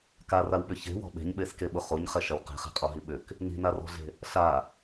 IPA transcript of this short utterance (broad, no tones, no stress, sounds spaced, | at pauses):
k a r a w ɓ ʏ ç e̤ w ɔ̤ ɓ e̤ ɲ ɓ e s k e ɓ ʊ χ o ɲ χ ɛ ʃ ɐ w q e̤ χ e̤ qʼ ɔ ɦ i ɓ ʏ k | n i̤ n a r ɔ̤ ɮ e̤ | ɬ a